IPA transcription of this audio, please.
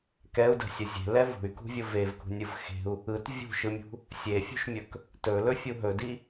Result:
kɛu̯də̤sʲə zʲe̤lɛ vṳy̯kṳvʲʊ vevkṳnʲɯv xe̤u̯ | ɯt vʲṳʃɯmʲṳ | sʲefʲṳʃmʲɵk | tɵlɵfʲu ɦɵdi

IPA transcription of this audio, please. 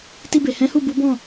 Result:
ti˧be˨hɛ̃˨˦hu˦˨ bu˨˦bɔ̃˦˨

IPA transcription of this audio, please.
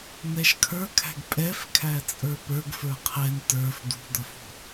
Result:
nɛʃkʰə˞kʰæ̤ɡ pʼɛfkʰæt͡sʼə˞ pə˞ɡfə˞ qʰɛn tə˞f d̪ṳd̪ʌfṳ

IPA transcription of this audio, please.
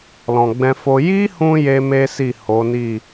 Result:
lɔ̃˨ɡ͡bɛ̃˧fo˧ ji˦hũ˧ je˦me˦si˦˨ ho˨˦ni˦˨

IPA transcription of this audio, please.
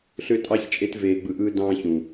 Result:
ɬø˧tʼɑ˧ç t͡ʃʼe˧tveː˨ɡ͡bɯ˨ ʔɯ˧dɑ̃ː˧çũ˨

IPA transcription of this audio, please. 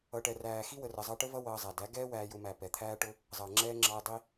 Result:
ʌː˨ʈɛ˨ræː˨ xi˦wə˨rə˨zˤɑ˧ ʈə˦vʌ˦ wʌː˧zˤæ˨ dæ˨˦ɡɛː˦ wæː˧jʊ˧mæ˨ pɛ˨t̪ʰæː˦ʈʊ˦ | zˤʌː˨ ŋ͡ǁɛː˧ ŋ͡ǁɑ˧e̯dˤi˧

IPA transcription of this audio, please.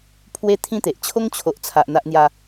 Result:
pʰwe˦t̪ʰĩ˦t̪e˨ʔ t͡ɕʰo˦ŋt͡ɕʰo˨ʔt͡sʰa˨ʔ n̪a˦ʔn̪ja˦

